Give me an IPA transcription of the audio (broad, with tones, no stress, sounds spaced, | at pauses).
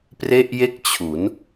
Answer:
p r e˥˩ ʔ j e˥˩ k̚ t͡ɕʰ u˩˦ n